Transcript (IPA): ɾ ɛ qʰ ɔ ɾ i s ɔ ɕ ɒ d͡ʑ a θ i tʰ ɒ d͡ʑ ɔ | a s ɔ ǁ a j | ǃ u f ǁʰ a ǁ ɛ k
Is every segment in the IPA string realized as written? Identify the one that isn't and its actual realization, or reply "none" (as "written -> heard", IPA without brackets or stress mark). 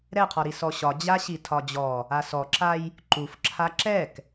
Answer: θ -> ɕ